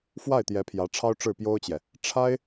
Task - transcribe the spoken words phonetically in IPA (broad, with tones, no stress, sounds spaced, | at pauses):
f w a˥˩ ɪ̯ t̪ j ɛ˧˥ pʰ j ä˧˥ ʈ͡ʂʰ ɑ˥ ʊ̯ ʈ͡ʂ ɻ̩˥˩ p j o˥ ʊ̯ t͡ɕ j ɛ˨ | ʈ͡ʂʰ a˥ ɪ̯